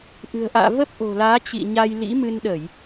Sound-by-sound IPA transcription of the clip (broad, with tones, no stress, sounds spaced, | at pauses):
ʔ ɨ̤˨˩ ə̯ ʔ a̰ː˧˨ v ə˦˥ p̚ ʔ o̤˨˩ l aː˨˦ t͡ɕ ḭ˧˨ ɲ a˧ j l ḭ˧˥ m ɨ˧ n ɗ ə˧˩˨ j